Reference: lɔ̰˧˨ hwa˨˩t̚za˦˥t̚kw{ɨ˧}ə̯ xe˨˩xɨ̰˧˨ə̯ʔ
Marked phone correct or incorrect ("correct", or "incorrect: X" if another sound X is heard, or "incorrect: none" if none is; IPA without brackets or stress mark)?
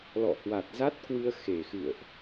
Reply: correct